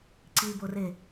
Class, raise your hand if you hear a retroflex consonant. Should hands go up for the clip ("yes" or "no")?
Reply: no